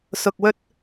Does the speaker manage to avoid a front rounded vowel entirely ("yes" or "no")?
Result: yes